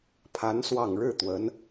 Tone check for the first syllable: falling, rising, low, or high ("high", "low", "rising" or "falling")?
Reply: rising